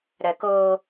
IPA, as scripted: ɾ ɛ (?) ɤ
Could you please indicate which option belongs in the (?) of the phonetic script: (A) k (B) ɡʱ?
A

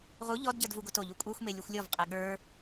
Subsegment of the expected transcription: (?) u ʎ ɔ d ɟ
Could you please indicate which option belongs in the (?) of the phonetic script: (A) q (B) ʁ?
B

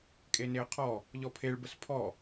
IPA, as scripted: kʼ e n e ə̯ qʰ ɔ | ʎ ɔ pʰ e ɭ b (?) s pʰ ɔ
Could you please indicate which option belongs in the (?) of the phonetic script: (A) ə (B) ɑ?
A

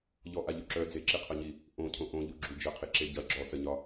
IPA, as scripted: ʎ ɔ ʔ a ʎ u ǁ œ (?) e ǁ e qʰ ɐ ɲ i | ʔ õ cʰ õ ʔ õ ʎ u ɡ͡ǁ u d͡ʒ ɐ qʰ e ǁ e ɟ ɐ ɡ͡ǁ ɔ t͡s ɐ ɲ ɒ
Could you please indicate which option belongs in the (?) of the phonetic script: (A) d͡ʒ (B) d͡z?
B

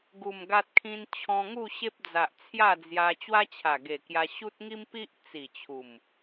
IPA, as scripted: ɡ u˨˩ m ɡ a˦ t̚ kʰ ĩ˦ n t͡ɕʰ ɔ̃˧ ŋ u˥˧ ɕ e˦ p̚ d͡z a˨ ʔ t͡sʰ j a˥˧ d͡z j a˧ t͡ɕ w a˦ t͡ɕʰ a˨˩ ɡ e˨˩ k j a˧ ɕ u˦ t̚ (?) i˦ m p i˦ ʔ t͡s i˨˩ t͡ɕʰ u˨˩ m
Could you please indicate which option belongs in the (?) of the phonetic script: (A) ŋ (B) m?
A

